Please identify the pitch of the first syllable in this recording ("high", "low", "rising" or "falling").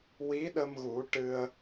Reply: rising